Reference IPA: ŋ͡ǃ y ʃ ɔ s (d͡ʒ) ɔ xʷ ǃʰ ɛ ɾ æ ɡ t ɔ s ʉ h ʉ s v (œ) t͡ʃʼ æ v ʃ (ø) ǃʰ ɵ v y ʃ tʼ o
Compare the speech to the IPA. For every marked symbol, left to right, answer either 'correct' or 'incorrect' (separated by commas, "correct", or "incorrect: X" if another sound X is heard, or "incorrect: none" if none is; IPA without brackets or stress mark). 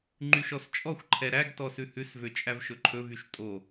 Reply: incorrect: t͡ʃʼ, incorrect: ø, incorrect: ɵ